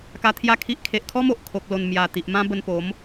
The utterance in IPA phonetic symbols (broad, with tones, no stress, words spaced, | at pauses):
ka˧t̪ʰja˥˧kʰi˦ʔ kʰe˨ʔkʰɔ˦mo˨ʔ kʰo˨k̚ lo˨˩n mja˨˩ t̪i˨ʔmã˦ bə˧npo˨˦m